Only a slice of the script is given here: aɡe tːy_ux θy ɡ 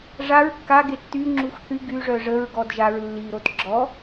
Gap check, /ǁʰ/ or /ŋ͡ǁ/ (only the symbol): ŋ͡ǁ